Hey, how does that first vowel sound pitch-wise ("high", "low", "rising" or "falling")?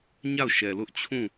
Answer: falling